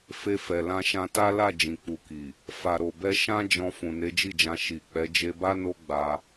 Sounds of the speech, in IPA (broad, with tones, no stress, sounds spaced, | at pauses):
f e˧ f ɛ˨ l ã˧ ʃ ã˧ t a˦ l a˦˨ d͡ʒ ĩ˨ k͡p u˨ k i˨ | f a˨ ɾ o˨ b ɛ˧ ʃ ã˦ d͡ʒ ɔ̃˧ f ũ˨ n e˨˦ d͡ʒ i˦˨ d͡ʒ ã˧ ʃ i˨ k͡p ɛ˨˦ d͡ʒ e˧ b a˦ n o˦ ɡ͡b a˧